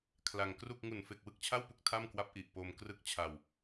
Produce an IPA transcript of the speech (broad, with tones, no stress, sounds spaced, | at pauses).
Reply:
kʰ l a˧ ŋ k r u˥˩ k̚ ŋ u˨˩ n f e˨˩ k̚ w ɯ˥˩ k̚ t͡ɕʰ a˥˩ w p u˥˩ k̚ tʰ a˥˩ m k w a˦˥ p̚ ʔ i˨˩ ʔ p o˧ m k r ɯ˥˩ k̚ t͡ɕʰ a˧ w